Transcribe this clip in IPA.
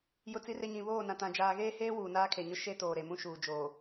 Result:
j ʊ˦ t͡s i˦ r e˦ ɲ ĩ˨ β oː˦˨ n ã˨ t ã˨ d͡ʒ aː˨ ɣ eː˦ h eː˦ w uː˨ n aː˦ kʰ e˨ ɲ ʊ˦ ʃ e˦ t oː˨ ɾ e˨ m ũ˦ ʃ uː˨ d͡ʒ oː˨

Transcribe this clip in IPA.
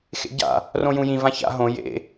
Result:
x ḛ ɟ a̰ | r õ j ũ j ĩ v ã ç a̰ ɦ õ j ḛ

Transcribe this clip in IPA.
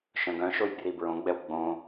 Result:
ʃ œ̃ ɡ œ̃ ʃ o j b r i b ɹ õ ɡ͡b ɛ w ɡ͡b õ

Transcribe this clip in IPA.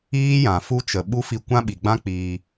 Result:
iː˦ j ã˨ f u˧ t͡ʃ ə˨ ɓ u˦ f i˧ kʷ ã˦ ɓ i˨ ɡ͡b ã˦ k͡p iː˧

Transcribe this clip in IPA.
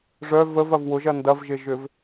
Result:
ʐ œ v ə v ɐ v w ʊ ʒ ɐ n d ɐ v ʒ ɪ ʒ ʏ v

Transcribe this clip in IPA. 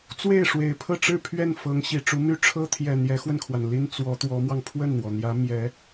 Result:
t͡s w e˥˩ ɪ̯ ʂ w e˨˩ ɪ̯ pʰ ɤ˥˧ ʈ͡ʂ ɻ̩˥˧ pʰ ɥ ɛ˥˩ n f ɤ˧˥ ŋ ɕ i˨˩ ʈ͡ʂ u˧˥ m y˥ ʈ͡ʂʰ ɤ˥ t̪ʰ j ɛ˨˩ n̪ j ɛ˧˥ x w ə˧ n kʰ w a˩ n l i˥ n t͡s w ɔ˧˥ t̪ w ɔ˧˥ m w ɑ˧ ŋ pʰ w ə˥˩ n n̪ w ɔ˩ n̪ j ä˧˥ m j ɛ˧˥

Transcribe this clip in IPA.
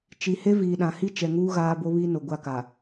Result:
t͡ʃ i˨ h e˦ v iː˨ ɗ ã˨ h i˦ t͡ʃ ɛ˨ ŋ uː˦ ɣ aː˦ b o˦ β iː˦ n o˨ ɡʷ a˦˨ k a˨

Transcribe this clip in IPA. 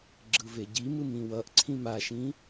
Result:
ɡ͡ǁ ɯ v e ɟ i m ɯ m ĩ w ʌ ʔ ǀʰ ĩ m a ʃ ĩ

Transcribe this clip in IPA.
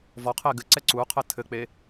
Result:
v ɔ qʰ e ɡ ɘ ǀ ɛ ǀ u qʰ ɘ tʰ ɘ k͡p e

